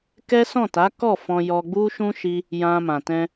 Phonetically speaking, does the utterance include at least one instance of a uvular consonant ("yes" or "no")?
no